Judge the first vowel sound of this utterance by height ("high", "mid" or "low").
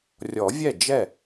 mid